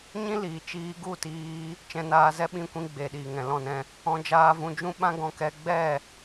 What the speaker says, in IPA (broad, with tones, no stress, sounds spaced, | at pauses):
ɲ ĩ˦ l iː˨ t͡ʃ iː˧ ɡ u˦˨ t iː˧ | t͡ʃ ɛ̃˧ n aː˧ z ɛ˦ ɓ ĩ˧ kʷ ĩ˧ ɡ͡b e˨ ɗ iː˨ ŋ ɛ̃˨ l ɔ̃˦˨ n ɛ̃˧ | ɔ̃˧ d͡ʒ aː˧ v ũ˧ d͡ʒ ũ˦ ɓ ã˦ ɡ ɔ̃˧ k ɛ˧ ɡ͡b ɛ˦˨